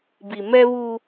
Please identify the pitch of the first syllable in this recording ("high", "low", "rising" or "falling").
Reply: low